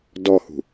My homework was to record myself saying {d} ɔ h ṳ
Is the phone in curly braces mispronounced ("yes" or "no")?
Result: no